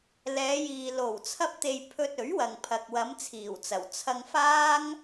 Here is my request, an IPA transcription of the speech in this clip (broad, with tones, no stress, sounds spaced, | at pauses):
l ɛː˨˧ j iː˨ l o˨˩ w t͡sʰ ɐ˧ p̚ t̪ e˨ j pʰ ɵ˧ t̚ ɵ˨˥ ɥ w ɐ˨ ŋ pʰ ɐ˨ k̚ w ɐ˨˧ m t͡sʰ iː˨˩ w t͡s ɐ˨˩ w t͡sʰ ɐ˧ ŋ f aː˥ ŋ